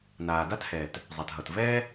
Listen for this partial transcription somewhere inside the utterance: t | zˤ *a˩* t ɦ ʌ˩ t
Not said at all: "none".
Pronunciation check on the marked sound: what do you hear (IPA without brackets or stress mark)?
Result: a˩